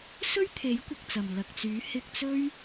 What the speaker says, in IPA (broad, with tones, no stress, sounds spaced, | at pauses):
s ɵ˥ ɥ t̪ʰ e˨˥ j kʷ ɪ˨ k̚ t͡s ɐ˨˩ m l ɐ˨ k̚ t͡s yː˨˥ h ɪ˧ k̚ t͡s ɵ˥ ɥ